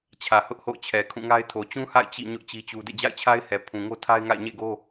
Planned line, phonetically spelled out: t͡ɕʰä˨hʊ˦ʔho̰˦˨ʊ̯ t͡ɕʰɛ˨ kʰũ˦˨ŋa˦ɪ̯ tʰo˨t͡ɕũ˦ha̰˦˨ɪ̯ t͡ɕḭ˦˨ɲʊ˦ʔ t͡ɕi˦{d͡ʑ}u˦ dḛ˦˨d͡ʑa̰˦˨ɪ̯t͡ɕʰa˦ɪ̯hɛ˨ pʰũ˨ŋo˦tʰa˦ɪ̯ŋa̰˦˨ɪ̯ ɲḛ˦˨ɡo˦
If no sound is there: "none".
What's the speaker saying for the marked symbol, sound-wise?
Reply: t͡ɕ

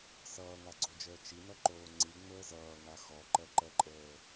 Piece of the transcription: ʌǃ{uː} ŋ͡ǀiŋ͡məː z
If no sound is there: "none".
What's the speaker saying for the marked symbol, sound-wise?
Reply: oː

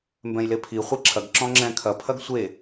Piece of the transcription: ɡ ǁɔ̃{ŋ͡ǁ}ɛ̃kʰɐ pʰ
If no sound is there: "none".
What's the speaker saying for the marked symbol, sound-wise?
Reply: ŋ͡ǁ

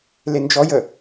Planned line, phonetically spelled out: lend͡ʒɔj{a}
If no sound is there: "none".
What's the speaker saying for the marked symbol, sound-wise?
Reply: ə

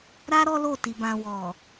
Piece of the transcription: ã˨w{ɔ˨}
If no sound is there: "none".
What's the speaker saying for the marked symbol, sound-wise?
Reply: ɔ˨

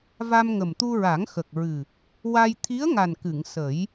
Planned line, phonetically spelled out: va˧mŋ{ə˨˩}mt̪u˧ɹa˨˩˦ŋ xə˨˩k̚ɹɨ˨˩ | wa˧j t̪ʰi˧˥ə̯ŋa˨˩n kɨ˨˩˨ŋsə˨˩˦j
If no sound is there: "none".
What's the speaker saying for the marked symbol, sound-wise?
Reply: ə˨˩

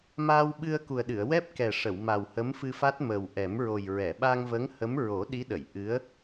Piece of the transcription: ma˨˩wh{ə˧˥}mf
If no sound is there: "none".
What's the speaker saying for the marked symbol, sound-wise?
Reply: ə˧˥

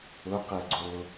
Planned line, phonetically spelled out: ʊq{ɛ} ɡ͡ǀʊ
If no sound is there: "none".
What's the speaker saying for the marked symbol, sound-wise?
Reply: ɛ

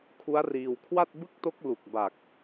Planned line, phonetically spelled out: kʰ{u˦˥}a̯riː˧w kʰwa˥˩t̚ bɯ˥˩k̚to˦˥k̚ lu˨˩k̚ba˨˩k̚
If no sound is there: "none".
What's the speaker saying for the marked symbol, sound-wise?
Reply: u˦˥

